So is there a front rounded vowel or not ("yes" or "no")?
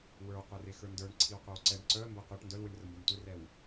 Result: yes